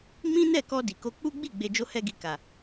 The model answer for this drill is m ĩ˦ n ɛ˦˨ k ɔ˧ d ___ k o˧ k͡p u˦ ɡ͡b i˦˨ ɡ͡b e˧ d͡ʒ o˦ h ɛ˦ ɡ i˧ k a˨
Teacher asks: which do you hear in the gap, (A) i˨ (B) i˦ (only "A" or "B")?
A